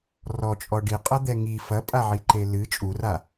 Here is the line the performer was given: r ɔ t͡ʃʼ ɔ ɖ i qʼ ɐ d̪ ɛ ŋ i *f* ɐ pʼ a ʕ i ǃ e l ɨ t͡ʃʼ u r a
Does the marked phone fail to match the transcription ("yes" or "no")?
no